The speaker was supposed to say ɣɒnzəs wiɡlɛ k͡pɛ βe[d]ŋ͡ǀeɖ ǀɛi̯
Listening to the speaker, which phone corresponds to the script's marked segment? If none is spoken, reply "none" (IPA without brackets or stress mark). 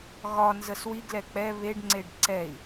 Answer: ɖ